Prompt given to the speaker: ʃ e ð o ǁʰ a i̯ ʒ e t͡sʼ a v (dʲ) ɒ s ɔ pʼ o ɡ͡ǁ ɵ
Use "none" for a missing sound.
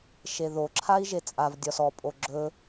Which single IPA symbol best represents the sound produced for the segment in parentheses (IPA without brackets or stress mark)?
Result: dʲ